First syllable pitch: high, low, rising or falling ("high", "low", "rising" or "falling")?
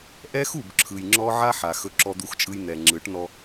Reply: high